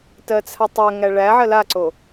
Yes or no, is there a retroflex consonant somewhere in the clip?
yes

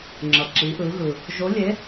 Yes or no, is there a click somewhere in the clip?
yes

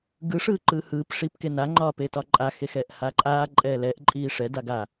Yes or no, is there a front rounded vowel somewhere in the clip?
no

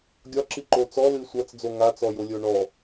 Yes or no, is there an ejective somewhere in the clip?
no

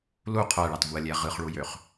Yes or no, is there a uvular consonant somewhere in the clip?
yes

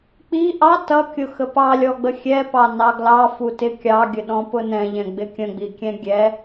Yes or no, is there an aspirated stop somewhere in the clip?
no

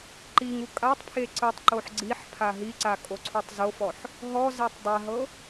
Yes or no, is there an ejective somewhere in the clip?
yes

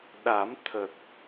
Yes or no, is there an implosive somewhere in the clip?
yes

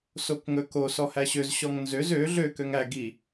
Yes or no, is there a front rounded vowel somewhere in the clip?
yes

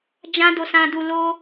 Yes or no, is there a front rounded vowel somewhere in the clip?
no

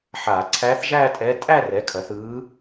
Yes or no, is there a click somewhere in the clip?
yes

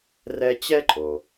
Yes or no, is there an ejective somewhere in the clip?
yes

